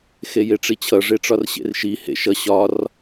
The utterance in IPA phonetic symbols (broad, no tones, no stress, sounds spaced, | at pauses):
x e j e ʈ͡ʂ i t͡ɕʰ ʌ ʐ e ʈ͡ʂ ɒ r ɕ ḛ r ʃ i h ḛ ʃ ʌ ɕ ɒ r